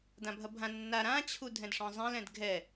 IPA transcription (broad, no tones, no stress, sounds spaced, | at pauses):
d ã bʱ ɐ bʱ ã nː a ɾ ã t͡ɕʰ u dʱ ɛ̃ d ʂ ɔ̃ zˤ ɛ̃ l ɛ̃ d ɡʱ ɛ